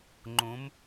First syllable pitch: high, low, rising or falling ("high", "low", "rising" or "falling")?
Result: rising